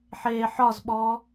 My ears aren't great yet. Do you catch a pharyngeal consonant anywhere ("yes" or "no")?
yes